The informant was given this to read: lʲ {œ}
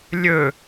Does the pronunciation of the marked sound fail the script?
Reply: yes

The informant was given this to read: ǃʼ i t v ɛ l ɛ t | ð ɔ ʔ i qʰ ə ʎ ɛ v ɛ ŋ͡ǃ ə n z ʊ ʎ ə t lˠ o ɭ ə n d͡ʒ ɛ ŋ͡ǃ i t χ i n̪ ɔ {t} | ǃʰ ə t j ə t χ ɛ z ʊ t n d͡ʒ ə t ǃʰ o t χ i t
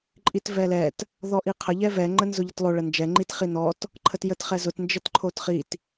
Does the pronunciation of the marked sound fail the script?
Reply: no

